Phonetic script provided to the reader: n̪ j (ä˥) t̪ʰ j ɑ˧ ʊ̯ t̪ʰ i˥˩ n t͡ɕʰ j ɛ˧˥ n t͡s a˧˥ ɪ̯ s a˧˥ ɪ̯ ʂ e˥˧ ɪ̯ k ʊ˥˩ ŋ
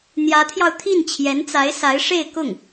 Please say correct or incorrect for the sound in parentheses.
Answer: incorrect: ä˧˥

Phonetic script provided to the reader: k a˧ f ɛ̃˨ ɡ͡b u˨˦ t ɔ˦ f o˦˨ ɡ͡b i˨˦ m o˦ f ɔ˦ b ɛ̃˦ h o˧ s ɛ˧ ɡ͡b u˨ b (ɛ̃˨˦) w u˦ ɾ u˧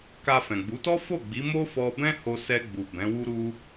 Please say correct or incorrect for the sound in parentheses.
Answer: correct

